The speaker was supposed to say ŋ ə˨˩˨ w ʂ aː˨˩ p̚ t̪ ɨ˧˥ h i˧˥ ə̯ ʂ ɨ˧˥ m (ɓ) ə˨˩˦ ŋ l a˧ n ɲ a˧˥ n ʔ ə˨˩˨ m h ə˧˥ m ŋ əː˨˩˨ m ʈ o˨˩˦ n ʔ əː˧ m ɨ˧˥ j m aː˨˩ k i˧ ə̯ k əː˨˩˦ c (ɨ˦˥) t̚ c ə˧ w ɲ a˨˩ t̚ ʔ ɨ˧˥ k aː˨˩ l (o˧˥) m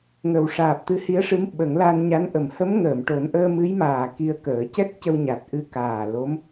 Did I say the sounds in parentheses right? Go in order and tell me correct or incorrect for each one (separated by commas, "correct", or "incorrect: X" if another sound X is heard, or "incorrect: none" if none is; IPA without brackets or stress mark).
correct, incorrect: ɛ˦˥, correct